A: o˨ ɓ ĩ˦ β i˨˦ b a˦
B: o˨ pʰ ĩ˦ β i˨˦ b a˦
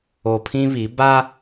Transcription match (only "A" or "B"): B